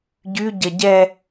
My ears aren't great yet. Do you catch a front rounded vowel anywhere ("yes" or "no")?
yes